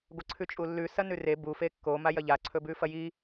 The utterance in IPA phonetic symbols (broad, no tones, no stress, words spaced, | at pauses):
ɡʷɐǀʰʉt͡ʃʼulːʉ sɐnʉre bu fekːo majɐʎa ǀʰɵbʉfɐji